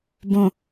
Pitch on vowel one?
low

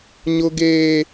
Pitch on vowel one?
high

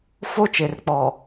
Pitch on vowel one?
high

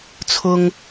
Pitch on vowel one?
high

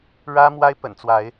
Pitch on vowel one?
high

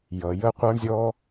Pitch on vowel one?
low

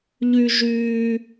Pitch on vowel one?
high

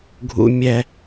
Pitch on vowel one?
high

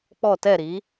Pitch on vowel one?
falling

